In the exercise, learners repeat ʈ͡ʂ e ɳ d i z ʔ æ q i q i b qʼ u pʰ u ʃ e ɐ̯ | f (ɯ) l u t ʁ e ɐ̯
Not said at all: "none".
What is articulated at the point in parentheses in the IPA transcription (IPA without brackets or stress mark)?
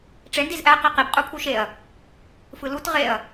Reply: ɯ